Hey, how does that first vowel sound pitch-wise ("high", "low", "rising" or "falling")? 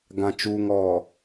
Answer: low